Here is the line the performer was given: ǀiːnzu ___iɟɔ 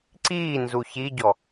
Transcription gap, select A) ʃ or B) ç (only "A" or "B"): B